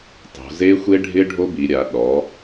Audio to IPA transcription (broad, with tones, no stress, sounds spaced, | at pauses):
tˤ o̤˩˧ z e˦˥ xʷ e˦˥ ɖʱ ɪ˦˥ ɖʱ o˦˥ b i˩˧ ɾʲ a˩˧ ɗ ɔ˩˧